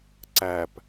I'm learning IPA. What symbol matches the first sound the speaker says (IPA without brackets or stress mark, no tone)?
ǀ